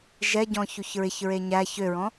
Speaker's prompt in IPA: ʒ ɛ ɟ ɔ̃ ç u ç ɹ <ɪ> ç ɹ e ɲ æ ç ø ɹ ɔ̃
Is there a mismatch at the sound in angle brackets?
no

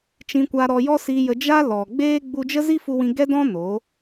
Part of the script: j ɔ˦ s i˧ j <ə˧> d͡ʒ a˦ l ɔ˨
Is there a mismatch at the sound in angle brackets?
no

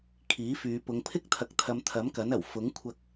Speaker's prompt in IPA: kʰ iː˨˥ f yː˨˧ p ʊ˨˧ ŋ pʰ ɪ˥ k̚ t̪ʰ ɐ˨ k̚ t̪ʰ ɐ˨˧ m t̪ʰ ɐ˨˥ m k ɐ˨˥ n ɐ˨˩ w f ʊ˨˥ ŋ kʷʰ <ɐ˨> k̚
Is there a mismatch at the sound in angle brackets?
yes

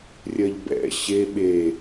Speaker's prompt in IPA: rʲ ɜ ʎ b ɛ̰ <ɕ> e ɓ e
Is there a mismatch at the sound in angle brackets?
no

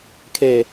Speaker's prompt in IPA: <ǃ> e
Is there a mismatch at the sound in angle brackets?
yes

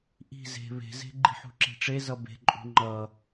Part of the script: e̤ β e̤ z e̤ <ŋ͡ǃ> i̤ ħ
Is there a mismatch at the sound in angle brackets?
yes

